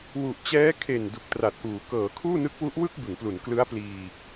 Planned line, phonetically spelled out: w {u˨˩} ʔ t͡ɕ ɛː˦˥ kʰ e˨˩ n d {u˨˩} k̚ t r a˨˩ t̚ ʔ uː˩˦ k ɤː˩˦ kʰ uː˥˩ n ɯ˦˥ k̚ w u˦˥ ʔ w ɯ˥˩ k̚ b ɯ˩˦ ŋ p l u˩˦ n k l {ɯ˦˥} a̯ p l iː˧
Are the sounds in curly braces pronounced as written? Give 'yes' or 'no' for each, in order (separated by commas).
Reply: yes, yes, yes